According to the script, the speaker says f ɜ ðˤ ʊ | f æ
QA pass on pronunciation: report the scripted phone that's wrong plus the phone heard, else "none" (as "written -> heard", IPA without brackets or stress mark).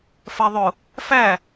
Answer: none